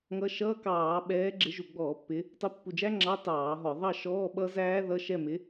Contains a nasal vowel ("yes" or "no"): no